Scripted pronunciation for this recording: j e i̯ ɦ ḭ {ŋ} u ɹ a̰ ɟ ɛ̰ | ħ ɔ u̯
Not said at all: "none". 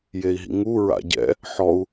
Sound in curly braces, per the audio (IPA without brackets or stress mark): ŋ